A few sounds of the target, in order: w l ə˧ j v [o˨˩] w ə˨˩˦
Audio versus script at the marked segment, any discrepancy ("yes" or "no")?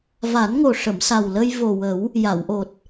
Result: no